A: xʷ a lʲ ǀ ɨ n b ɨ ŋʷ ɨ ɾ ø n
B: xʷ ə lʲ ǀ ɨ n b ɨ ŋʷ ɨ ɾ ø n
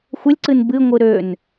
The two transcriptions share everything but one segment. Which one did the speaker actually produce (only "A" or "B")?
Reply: B